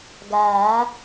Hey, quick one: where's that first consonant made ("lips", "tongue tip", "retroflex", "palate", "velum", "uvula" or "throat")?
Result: velum